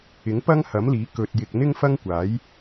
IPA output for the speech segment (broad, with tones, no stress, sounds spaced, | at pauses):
ɪ˨˥ ŋ p ɐ˥ ŋ h ɐ˨˥ m l iː˨˥ k ɵ˧ t̚ j ɪ˧ k̚ n̪ ɪ˥ ŋ f ɐ˥ ŋ kʷ aː˨˥ j